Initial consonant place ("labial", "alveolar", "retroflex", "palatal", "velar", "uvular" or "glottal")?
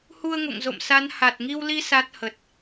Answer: glottal